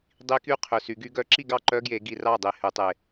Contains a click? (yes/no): yes